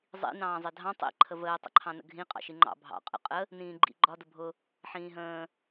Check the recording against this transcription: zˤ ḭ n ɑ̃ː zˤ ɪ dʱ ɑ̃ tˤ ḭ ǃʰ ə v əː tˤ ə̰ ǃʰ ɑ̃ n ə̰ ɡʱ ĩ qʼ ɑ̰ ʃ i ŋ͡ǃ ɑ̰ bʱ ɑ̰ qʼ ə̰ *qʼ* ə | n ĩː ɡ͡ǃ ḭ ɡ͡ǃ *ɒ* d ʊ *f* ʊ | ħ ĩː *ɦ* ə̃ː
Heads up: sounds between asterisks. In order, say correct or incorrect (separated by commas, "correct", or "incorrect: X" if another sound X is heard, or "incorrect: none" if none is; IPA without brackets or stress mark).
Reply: correct, correct, incorrect: bʱ, correct